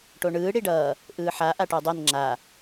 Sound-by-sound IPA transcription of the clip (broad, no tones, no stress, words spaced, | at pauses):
ʈoɳɯː ɽiɖʌː | ʔɯːħa ʔaʈudˤen ŋ͡ǁa